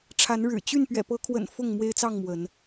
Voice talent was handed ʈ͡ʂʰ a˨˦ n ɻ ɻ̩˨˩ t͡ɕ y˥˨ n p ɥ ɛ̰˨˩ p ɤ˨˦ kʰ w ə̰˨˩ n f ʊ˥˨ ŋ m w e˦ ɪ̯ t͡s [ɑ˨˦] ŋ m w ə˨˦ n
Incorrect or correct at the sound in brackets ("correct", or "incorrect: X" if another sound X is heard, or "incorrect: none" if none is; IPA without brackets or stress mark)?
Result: incorrect: ɑ˥˨